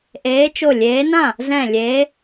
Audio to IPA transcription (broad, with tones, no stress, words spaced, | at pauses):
ʔeː˨˦t͡ʃo˧˩lʲeː˨˦nã˥˩ | zɛ̃˧˩lʲeː˨˦